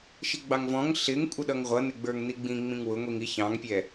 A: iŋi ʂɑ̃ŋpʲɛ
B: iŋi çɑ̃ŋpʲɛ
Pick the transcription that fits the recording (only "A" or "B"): B